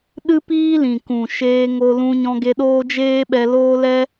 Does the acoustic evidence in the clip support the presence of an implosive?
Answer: yes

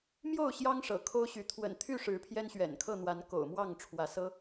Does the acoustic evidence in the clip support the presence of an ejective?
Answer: no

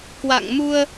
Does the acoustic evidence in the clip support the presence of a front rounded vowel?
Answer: no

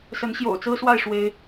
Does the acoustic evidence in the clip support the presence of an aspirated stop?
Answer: no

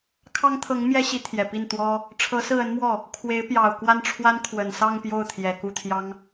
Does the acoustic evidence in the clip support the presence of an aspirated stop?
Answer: yes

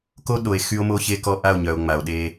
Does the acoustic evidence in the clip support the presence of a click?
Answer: no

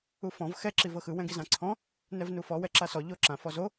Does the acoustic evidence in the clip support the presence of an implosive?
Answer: no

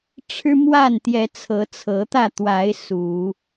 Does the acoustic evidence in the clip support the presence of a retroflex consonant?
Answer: yes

